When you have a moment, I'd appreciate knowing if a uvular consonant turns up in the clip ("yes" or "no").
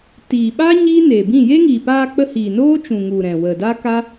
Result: no